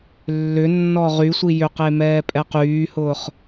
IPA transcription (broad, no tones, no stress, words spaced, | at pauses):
lːʏnːɔ ʁysʷi jʏqe mɛːpʼɛqyːhʊːχ